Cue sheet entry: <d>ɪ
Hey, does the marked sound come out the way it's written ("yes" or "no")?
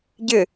no